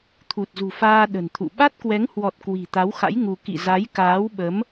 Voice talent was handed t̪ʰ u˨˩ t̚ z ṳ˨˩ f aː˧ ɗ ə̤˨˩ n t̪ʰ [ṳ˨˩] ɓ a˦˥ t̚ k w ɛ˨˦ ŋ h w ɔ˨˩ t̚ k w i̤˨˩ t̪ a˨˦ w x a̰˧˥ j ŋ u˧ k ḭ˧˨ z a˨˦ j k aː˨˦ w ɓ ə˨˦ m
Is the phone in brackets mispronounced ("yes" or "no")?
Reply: yes